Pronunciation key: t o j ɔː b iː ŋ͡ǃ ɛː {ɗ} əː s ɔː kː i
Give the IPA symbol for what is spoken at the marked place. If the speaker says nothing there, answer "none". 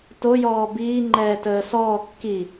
t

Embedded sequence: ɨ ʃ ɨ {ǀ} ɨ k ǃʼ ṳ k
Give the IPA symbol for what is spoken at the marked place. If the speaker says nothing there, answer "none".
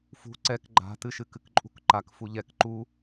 k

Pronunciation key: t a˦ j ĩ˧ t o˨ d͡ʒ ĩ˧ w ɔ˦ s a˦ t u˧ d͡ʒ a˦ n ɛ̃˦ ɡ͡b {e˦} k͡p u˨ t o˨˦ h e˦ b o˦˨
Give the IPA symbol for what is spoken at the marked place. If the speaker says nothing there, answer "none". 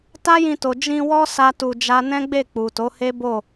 e˦˨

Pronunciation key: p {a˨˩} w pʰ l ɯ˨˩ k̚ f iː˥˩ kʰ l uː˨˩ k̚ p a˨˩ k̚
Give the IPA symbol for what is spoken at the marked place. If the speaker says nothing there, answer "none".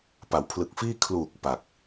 a˩˦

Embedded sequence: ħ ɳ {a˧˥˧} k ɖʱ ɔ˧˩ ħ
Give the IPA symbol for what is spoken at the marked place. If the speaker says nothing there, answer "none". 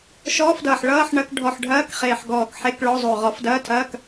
ɐ˧˥˧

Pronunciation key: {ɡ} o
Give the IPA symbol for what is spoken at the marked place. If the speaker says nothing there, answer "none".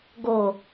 ɡ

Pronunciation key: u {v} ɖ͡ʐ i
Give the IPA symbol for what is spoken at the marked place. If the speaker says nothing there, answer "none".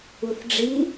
θ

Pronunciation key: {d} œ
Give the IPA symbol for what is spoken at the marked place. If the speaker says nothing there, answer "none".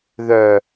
ð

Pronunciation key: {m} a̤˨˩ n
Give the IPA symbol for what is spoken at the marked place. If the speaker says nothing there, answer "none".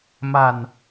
m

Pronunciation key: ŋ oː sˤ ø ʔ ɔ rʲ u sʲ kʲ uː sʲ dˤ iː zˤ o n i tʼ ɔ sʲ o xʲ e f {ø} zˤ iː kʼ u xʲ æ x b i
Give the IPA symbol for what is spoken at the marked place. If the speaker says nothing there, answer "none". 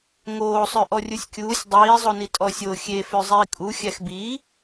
ø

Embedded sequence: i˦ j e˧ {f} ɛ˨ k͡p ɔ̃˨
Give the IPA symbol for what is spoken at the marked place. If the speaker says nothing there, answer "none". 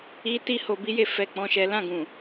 f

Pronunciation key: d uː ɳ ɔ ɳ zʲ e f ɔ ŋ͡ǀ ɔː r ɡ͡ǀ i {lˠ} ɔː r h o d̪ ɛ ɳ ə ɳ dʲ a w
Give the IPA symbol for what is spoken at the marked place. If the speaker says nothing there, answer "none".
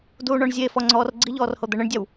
ʎ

